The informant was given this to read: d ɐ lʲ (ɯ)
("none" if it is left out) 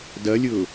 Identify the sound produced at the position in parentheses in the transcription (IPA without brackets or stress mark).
ʊ